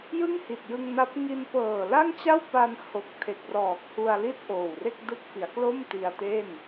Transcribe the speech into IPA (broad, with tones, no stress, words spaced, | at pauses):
jɯ˥˩ŋhi˨˩t̚jɯ˧ŋna˦˥p̚ ŋi˧n pɤː˨˩la˥˩ŋt͡ɕa˥˩wpa˧n ho˨˩k̚tʰe˨˩k̚rɔː˨˩k̚ hu˧a̯li˥˩t̚ ʔoː˨˩wre˥˩k̚dɯ˦˥k̚fi˩˦a̯ klo˥˩m ti˧a̯te˥˩n